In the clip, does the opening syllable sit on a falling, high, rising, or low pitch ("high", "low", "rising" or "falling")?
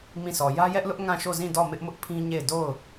falling